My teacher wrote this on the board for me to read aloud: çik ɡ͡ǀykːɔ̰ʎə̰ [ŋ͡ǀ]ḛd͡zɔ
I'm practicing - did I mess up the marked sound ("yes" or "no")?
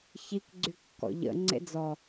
no